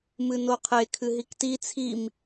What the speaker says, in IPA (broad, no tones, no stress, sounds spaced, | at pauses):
m ɨ n o qʰ e kʰ ɨ ɦ i k t i t͡sʰ i m